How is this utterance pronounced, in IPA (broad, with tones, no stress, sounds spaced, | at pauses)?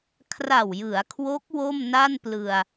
kʰ r a˨˩ w j ɯ˩˦ a̯ kʰ w o˦˥ k̚ w o˥˩ m n a˥˩ n p l ɯ˧ a̯